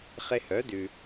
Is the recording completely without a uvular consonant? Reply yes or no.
no